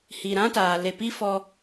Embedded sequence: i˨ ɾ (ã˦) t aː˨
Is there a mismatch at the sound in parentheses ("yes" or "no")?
no